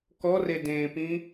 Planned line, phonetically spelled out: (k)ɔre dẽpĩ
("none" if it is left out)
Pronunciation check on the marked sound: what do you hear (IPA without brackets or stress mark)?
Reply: k